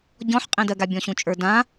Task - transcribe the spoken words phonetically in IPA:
ɟ ɔ̃ ħ qʼ ẽ d ɜ ɡ a bʲ ɔ̃ ɕ ũ t͡ʃʼ ə˞ d ã

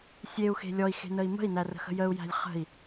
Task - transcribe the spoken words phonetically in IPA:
sʲ e u̯ x e̤ lʲ ɔ i̯ x e̤ n ə i̯ m ə̤ i̯ n æ r ə̤ x ə̤ j ə u̯ j æ̤ lʲ χ ə̤ i̯

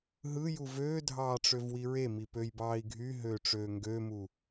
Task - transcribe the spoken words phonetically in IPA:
ɦ ɯ j u v øː dʱ ɑː ʈ͡ʂ ø v w i ɹ e m i p ø j b ɑː i̯ ɡʱ y ɦ øː ʈ͡ʂ øː ŋ ɡ ø m u

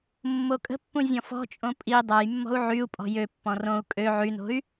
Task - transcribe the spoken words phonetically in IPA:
mː o kʼ ə̤ pː ũ zʲ ɔ̃ f ɔ̤ t͡ʃʼ õ pʼ i dˤ a j mː ɔ̤ u̯ ʕ y u̯ pʼ ɔ̤ j ø pː ɔ̃ r õ u̯ kʼ ø ʕ y n o̤ y̯

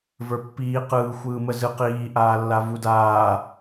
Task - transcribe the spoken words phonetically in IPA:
v ə˞ pː iː q ɯː xʷ ɯː m ə z ɯ q iː ʔ aː lː a v u d aː

